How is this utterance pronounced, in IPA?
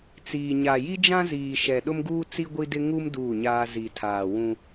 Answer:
t͡s iː˨ ɲ a˨ j i˦ d͡ʒ ã˦ z iː˨ ʃ ɛ˨ ɗ ʊ˦ m ɡ uː˦ t͡s i˦ ɡʷ i˦ d ɪ˦ ŋ u˦ m d uː˦˨ ɲ aː˦ z i˨ tʰ aː˨ w ũ˦

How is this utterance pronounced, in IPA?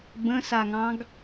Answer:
b ə̃ s a ŋ ɑ̃ ɡ

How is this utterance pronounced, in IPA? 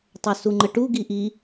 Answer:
tˤ œ s u ŋ͡ǃ ə ʈ u ɡ i ʔ i

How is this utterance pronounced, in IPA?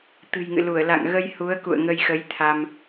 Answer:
t̪ ɨ̤˨˩ j ŋ ɨ̰˧˨ l u˧˩ ə̯ l a̰˧˨ ŋ ɣ ə˧ j h u˨˦ ə̯ k ṵ˧˨ ə̯ ŋ ə˧ j x ə˨˦ j t̪ʰ a˧ m

